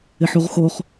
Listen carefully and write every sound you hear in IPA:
ɪħuʁxoχ

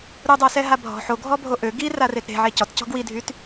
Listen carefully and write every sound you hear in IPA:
ɾudˤœsɛɦa bʱɔ̤ ħoɡʱɔbʱo ʔø ɡiraret ɾe̤ʕe cɔtcɔ̤ ɡwidʱyt

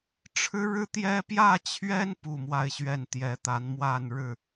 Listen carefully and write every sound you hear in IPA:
ʈ͡ʂʰɻ̩˥ɻɻ̩˥t̪jɛ˥ pjä˥˩t͡ɕʰɥɛ˥n pu˥˧mwa˥˧ɪ̯ɕɥɛ˥˩n t̪jɛ˧˥t̪a˧˥nmwa˥˧n ɻɻ̩˥˩

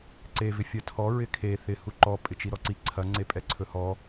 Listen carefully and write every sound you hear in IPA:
ǀe vɪfʲɐtʰɔ ɹɪkʰe θɪ huǃɔ pʼɪt͡ʃiɾɔǀi ǀʰɐ ŋ͡ǀepʼɛǀʰɵhɔ

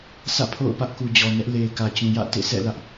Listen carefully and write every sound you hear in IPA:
sä̰˦˨pʰo̰˦˨ʊ̯pä˦ʔku˨ d͡ʑɔ˨nɛ˦ʔ le˨ɪ̯kä˨ t͡ɕũ˨jä̰˦˨ tḛ˦˨sʰɛ̰˦˨lä˦ʔ

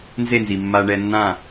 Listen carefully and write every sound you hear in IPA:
nze˥˩nzi˩ mːa˧ɳɛ˧nːã˥˩

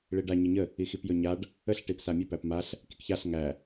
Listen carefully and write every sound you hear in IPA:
ɭiɖa ɲiɲə | ixipjɵɲaɖ | əɬ ʈipsamʲɵ pæpmaɬ | kikçaɬ ŋæ

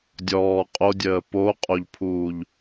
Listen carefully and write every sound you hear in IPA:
dʲɔː qʼodʲəː poqʼoʎpʰuːʎ

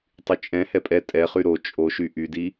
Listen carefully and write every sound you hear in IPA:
tˤyt͡ʃʼɛ̃ hɛpʼɛ tʼɛχy ɾo t͡ʃʼoʃy ʔydi

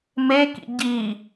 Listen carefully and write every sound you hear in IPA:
mekḭ ɟi

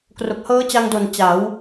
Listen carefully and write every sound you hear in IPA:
kro˨˩k̚hɤː˦˥t͡ɕa˧ŋdo˨˩n t͡ɕa˩˦w

